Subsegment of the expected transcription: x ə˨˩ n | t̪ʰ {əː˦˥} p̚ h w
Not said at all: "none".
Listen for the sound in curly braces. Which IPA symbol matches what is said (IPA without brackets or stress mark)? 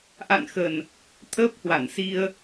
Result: əː˦˥